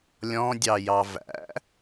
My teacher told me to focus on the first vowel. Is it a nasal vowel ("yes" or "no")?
yes